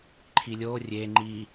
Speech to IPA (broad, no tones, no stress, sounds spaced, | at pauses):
ǃʰ i lʲ o rʲ e ŋ͡ǃ i